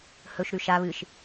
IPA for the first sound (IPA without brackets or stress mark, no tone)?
h